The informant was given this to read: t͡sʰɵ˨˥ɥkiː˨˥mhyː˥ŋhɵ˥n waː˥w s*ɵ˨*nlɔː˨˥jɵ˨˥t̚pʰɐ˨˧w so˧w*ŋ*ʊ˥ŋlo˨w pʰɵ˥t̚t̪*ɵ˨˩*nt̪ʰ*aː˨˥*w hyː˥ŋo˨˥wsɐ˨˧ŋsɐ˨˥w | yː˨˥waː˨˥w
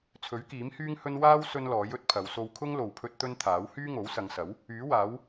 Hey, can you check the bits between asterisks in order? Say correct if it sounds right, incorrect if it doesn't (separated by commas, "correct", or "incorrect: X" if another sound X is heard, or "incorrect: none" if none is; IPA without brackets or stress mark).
incorrect: ɵ˥, incorrect: kʰ, incorrect: ɵ˥, correct